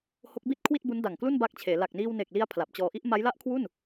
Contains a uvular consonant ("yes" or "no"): no